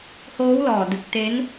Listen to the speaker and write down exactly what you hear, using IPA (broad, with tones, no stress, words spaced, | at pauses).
hoː˦˥wlɔː˨˩dɯ˨˩k̚ te˦˥n